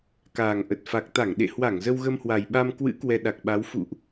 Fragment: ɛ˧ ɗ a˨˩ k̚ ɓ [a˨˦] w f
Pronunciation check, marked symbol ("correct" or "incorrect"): correct